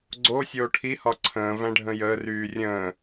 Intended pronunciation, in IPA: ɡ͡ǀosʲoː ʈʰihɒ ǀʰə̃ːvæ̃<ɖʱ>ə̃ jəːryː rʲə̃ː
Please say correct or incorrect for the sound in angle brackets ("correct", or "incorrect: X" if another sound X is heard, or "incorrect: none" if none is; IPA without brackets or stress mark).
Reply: correct